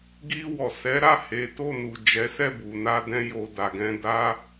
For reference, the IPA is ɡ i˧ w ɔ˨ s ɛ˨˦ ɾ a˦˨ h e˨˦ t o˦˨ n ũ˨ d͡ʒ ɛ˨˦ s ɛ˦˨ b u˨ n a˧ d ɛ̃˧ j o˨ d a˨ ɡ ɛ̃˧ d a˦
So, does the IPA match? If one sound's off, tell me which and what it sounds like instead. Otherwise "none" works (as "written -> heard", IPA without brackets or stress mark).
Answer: ũ˨ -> u˨